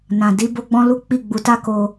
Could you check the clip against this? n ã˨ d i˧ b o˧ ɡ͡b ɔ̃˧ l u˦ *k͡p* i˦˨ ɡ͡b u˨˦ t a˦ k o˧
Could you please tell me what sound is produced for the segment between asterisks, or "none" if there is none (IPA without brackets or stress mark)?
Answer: k͡p